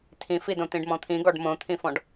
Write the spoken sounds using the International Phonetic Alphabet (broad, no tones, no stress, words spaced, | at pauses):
tʰĩfidõ t̪ĩɖmɔ̃t̪ʰĩɡɔɖ mõt̪ʰĩfɔ̃ɖ